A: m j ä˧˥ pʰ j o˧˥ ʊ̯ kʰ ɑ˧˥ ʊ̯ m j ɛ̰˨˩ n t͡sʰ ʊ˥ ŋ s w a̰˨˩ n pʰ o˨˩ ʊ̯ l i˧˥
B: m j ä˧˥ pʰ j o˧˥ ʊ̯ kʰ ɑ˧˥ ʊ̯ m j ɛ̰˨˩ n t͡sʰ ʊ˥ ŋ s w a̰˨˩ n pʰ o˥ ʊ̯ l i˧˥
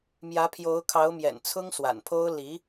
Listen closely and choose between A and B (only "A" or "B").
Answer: B